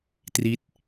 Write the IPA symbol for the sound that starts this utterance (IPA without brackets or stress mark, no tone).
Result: t